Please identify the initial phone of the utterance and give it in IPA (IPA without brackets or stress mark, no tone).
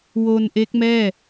w